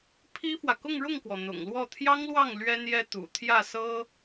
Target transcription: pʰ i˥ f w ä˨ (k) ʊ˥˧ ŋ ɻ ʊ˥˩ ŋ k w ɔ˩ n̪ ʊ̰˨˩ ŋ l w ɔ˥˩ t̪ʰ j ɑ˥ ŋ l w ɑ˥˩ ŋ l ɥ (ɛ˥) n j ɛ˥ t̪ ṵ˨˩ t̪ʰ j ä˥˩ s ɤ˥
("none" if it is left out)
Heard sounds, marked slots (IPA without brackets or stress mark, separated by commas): k, ɛ˥